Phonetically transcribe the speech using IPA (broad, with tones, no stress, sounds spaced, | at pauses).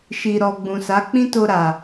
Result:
ʃ i˨ ɾ ɔ˨ ɡ͡b ũ˨ s a˨˦ k͡p ĩ˦ t o˧ ɾ a˨